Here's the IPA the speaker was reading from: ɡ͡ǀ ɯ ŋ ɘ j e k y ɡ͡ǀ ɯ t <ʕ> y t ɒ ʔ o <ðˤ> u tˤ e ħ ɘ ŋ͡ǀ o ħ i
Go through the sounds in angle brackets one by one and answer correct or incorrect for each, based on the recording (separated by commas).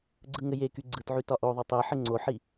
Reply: correct, correct